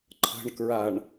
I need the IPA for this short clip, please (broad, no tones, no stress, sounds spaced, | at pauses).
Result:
ǃʰ ə̤ ɳ k ɹ a ɳ